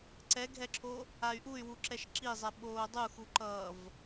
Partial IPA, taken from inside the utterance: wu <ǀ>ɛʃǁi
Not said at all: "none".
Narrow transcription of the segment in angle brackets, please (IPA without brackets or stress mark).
ǁ